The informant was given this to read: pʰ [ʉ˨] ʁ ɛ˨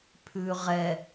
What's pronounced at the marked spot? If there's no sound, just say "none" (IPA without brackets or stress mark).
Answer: ʉ˨